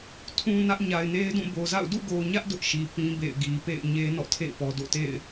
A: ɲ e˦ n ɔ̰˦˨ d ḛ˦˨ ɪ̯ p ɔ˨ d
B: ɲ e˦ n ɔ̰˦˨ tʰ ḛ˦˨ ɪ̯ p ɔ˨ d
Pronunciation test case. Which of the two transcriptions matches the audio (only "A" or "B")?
B